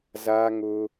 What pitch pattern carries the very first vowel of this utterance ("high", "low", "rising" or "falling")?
high